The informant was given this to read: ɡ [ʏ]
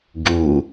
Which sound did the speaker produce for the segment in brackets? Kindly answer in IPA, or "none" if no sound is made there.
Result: u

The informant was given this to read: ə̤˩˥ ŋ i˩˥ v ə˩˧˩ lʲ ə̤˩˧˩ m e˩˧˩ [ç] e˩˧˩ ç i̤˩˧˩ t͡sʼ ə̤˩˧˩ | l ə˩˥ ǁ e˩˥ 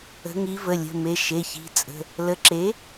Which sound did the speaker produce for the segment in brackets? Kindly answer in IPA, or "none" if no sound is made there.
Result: ʃ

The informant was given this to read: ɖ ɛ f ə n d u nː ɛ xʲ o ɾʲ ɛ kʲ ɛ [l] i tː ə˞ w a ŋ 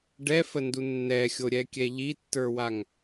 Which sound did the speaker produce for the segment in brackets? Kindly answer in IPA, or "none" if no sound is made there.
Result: ʎ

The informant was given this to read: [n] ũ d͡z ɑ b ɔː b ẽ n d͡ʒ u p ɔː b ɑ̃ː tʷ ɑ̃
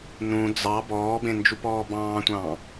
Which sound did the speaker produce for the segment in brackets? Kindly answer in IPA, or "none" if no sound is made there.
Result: n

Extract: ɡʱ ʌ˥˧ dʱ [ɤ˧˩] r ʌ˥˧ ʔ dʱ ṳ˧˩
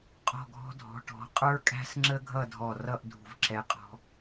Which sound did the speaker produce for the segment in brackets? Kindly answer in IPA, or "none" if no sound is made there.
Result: ɔ˧˩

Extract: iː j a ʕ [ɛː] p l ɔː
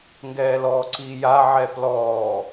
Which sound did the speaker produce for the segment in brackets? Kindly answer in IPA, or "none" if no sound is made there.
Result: ɛ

